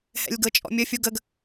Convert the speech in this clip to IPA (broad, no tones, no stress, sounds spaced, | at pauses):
h ɛ̰ lʲ ɡ ɤ t͡ʃʼ ɔ̰ mʲ ə fʲ u ɡ ə ɡ